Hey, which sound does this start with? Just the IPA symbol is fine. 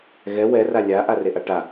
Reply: ɣ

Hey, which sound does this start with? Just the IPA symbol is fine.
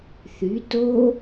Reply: θ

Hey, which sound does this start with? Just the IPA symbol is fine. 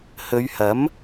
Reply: h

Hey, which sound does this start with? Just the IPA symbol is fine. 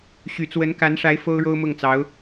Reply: ɕ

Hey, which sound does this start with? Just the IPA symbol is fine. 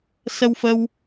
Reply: s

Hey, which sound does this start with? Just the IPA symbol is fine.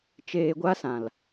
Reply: t͡ʃ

